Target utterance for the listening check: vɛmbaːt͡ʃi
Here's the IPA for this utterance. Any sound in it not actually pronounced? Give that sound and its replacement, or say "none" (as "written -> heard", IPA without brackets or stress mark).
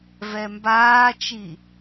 none